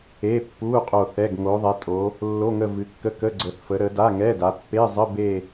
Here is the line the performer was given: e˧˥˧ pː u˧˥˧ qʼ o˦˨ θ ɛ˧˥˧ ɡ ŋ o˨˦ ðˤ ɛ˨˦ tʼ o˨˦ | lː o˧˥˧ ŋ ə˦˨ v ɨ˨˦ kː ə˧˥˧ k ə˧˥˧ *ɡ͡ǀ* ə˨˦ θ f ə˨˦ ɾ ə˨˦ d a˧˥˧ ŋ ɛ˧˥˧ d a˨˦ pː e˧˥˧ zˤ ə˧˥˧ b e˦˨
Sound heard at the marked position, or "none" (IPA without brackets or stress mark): ɡ͡ǀ